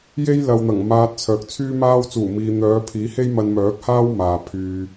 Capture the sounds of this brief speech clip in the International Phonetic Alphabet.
j e˥ j l ɐ˨ w n̪ ɐ˨˩ ŋ m aː˧ t̚ t͡sʰ œː˨ k̚ t͡sʰ yː˥ m aː˥ w t͡s uː˨˩ m iː˨ n̪ œː˨˧ pʰ iː˨˥ h e˥ j m ɐ˧ n m œː˨˥ k̚ h aː˥ w m aː˨ pʰ yː˧

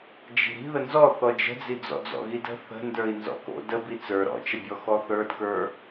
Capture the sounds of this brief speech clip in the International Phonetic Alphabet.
d͡ʒ i̤ ɾ i̤ ð ə n z ɔ θ ɔ d͡ʒ ə̤ d͡z i d͡z ɔ̰ d͡z ɔ̰ ɣ i d ə̤ θ ə̤ n d ə˞ i̯ n z ɔ̰ k o̰ d ə b i t͡s ə˞ ɾ ɔ̰ t͡ʃ ə bʲ ɔ x ɔ θ ə˞ d k ə˞

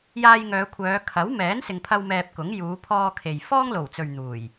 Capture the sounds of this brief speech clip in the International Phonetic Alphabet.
j aː˧ j ŋ œː˨˧ kʷʰ œː˨˧ kʰ ɐ˨˥ w m ɛː˨˥ n s ɪ˧ ŋ pʰ ɐ˥ w m ɛː˧ p̚ k ʊ˨˥ ŋ j uː˨˧ pʰ ɔː˧ kʰ e˨ j f ɔː˥ ŋ l o˨˩ w t͡s ɵ˨ ɥ n̪ uː˨˩ j

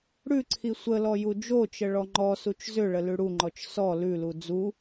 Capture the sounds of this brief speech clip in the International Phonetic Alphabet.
ɽ ʉ ǀʰ i sʷ ə l ɔ j u d͡ʒ o t͡ʃ ə ɭ ɔ ŋ͡ǃ ɔ s u t͡ʃ z ʏ ɭ ə l ʉ ɽ u ŋ͡ǃ ɔ t͡ʃ s ɔ l ʉ l u d͡z u

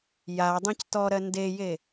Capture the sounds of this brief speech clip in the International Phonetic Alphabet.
j a dˤ ẽ c t ɔ ɾ ɜ n d e j e

